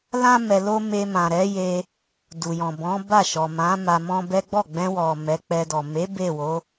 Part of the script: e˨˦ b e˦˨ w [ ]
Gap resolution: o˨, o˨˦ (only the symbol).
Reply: o˨˦